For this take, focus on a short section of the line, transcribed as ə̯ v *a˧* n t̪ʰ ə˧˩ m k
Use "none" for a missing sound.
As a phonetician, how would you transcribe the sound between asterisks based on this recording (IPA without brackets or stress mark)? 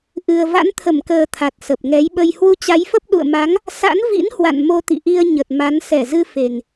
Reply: a̰˧˥